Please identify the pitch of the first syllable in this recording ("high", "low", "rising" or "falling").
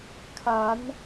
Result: rising